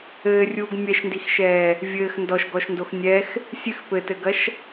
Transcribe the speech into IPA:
ɘː rʲ uː ɡ mʲ ɛ ʃ n d i x ʃ ɛː | vʲ ɘː x n d ɔ ʃ ɡ ɔ ʃ n d o x nʲ ɛ x | sʲ ɨ x p ɘ t ɘ ɡ ɐ ʃ

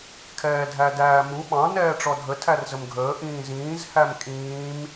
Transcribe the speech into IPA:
kʰ ɛː dʱ æ d æː m u ɓ ɑ̃ n ɛː ʈ͡ʂ ɔ dʱ ə tʰ æ r z ə m ɡʱ əː ʔ ĩː z ĩː z h æ m kʼ ĩː m

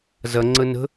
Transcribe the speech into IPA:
z ɐ ŋ͡ǀ ə n ə̤

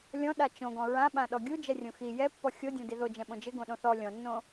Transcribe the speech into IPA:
lʲ ɔ̃ ɗ a t͡ʃ õ ɡ ɔ̃ ɹ ã ɓ ã ɗ ɔ ɡʲ u d͡ʒ ɛ rʲ õ x i j ɛ pː ɔ xʲ o dʲ ɔ̃ d i ð o d͡ʒ ɛ̃ ɓ õ d͡ʒ ɪ ɡ õ ɗ õ θ ɔ lʲ ɔ̃ nː õ

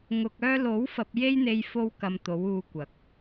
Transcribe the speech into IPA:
ŋ ʊ˨ k̚ œː˧ l o˨˥ w f ɐ˧ p̚ j e˥ j n̪ e˧ j f o˧ w k ɐ˨ m t̪ o˨˥ w uː˧ kʷ ɐ˨˥ k̚

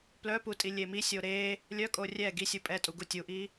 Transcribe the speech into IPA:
p l œ p u tʼ i lʲ e m i sʲ o ɾ e | lʲ œ kʼ o rʲ ɛ ɡ i sʲ u pʼ ɛ tʼ u ɡ u tʲ u ʔ i

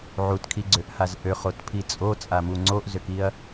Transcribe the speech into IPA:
ʕ u t kʰ i ɡ͡ǀ ø ʔ h a z ʔ ø χ o t pʰ i t͡sʼ o t͡sʼ a m u ŋ͡ǀ o ʔ z ø k i ɐ̯

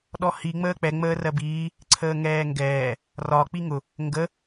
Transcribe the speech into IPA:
ɗ ɔ h i ŋ͡m əː k͡p ɛ ŋ͡m əː r ɜ b iː | ǀʰ əː ŋ ɛː ŋ ɡ ɛː | r ɒ k͡p i ŋ ʊ | ŋ ɡ ə

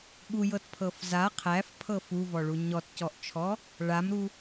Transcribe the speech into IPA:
ɠ u j ɤ t pʰ ɤ f z a qʰ æ f pʰ ɤ f u v ɔ ɭ u ɲ ɔ t c ɔ ʔ t͡ʃʰ ɔ | ɭ a m ɾ u

